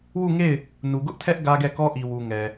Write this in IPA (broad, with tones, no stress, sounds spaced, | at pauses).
w u˦˨ ŋ e˦˨ ɪ̯ | n u˨ ɡ ʊ˦ ʔ tʰ ɛ˦ ʔ ɡ ä˦ ɡ ɛ˦˨ k ɔ˦ ʔ i˨ w u˨ ŋ ɛ˨